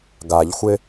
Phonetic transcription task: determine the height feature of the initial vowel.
low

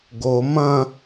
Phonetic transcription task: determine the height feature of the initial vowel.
mid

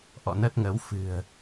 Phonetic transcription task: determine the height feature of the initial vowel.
mid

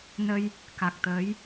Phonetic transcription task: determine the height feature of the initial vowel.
mid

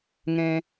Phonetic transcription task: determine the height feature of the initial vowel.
mid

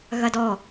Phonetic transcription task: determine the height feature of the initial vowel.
low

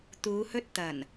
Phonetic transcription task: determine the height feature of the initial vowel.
high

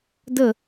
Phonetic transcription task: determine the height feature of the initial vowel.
mid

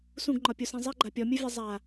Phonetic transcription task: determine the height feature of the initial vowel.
high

